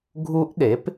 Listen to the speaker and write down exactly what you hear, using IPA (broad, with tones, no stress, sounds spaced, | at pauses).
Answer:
ɡʱ u˦˥ ʔ ɗ e˩˥ p